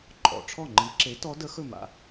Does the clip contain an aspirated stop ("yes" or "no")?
yes